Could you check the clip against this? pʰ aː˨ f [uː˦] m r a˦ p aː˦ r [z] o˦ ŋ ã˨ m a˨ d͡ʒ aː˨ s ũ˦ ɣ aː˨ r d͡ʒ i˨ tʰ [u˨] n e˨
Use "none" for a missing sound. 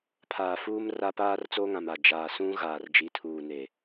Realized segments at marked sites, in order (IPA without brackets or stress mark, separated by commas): uː˦, t͡s, uː˨